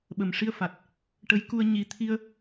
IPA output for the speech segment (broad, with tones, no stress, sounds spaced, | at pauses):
ɓ ə˨˩ m ʂ i˧ ə̯ f a˨˩ t̚ | ʈ ə˧˥ j k u˧ ə̯ ɲ i˧ t̪ʰ i˧ ə̯